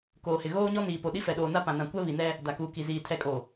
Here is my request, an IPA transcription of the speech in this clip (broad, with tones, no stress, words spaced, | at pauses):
koː˨hɪ˨ ɣoː˦ɲɔ˦ niː˨po˨ɗi˦ fɛ˨ɗoː˨na˦ pã˨nã˨ kʷɛ˦βi˨nɛ˦ | da˨kuː˨ki˨ziː˨ tʰɛ˨kʼo˨